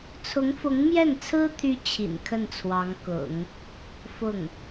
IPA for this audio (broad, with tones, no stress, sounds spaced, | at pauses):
t͡sʰ ʊ˧˥ ŋ f ʊ˧˥ ŋ m j ɛ˥˩ n t͡sʰ ɹ̩˥ t̪ʰ y˥ t͡ɕʰ ḭ˨˩ n kʰ ə˥˩ n t͡sʰ w ɑ˧˥ ŋ k ʊ̰˨˩˦ ŋ | f ʊ˥˩ ŋ